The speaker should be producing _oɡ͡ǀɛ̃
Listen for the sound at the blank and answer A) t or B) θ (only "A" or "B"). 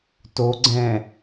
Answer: A